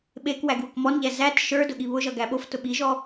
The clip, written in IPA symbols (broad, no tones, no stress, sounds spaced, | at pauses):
ɓ e k w æ ɡ w ʊ k m ɔ n ʎ æ z æ t ʃ ə˞ d ʊ ɠ i β ʊ ʒ ʌ ɡ æ ɓ o f t ʊ ɓ i ʒ ɔ